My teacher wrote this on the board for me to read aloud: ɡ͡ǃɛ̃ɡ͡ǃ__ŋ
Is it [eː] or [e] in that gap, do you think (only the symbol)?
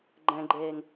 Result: eː